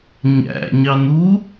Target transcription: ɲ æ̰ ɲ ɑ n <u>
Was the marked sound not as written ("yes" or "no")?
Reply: no